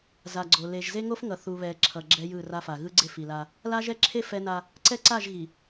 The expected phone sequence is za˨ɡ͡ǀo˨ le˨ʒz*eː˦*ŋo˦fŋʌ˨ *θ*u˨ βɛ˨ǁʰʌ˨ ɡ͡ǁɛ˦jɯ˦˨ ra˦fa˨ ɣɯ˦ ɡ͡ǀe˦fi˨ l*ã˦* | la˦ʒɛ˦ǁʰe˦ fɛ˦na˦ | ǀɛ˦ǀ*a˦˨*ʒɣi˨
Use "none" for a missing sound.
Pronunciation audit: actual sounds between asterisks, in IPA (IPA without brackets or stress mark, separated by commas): e˦, θ, a˦, a˦˨